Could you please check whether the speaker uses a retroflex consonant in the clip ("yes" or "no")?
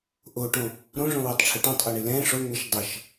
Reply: yes